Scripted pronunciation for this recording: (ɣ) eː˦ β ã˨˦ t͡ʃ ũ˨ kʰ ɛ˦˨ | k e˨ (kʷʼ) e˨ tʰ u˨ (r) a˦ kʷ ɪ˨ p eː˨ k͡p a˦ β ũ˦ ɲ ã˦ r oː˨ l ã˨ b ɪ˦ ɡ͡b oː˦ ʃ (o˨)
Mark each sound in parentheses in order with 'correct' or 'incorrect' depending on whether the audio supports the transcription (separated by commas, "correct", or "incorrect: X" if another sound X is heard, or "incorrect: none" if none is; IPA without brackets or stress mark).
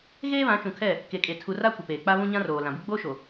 correct, incorrect: kʼ, correct, correct